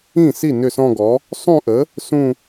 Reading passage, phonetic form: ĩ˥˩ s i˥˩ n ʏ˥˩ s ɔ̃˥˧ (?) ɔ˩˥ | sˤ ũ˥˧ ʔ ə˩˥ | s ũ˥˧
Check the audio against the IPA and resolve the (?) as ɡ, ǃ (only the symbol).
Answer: ɡ